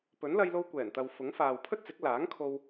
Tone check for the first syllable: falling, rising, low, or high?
rising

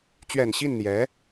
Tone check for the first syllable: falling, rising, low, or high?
low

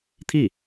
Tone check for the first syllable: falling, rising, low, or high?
falling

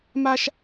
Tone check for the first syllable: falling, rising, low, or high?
high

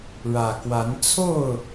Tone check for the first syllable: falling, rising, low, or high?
low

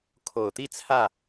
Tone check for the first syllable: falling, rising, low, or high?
low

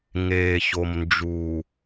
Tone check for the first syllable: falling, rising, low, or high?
low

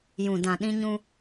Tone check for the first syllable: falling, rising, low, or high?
low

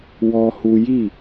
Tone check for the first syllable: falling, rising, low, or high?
high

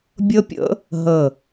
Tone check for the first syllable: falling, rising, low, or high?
high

